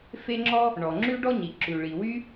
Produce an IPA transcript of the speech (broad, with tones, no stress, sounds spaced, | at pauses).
f e˥ ŋ͡ǁ ɔ˥ | ɳ ɔ˩ ŋ͡ǁ ʉ˥ ɖ ɔ˥ ɲ i˩ ǁ ʉ˩ ɭ i˩ w y˥